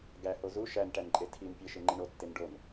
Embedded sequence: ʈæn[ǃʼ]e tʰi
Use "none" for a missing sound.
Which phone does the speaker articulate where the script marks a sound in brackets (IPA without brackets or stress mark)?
ǃʼ